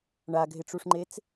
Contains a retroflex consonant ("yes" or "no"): yes